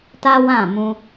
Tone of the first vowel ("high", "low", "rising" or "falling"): high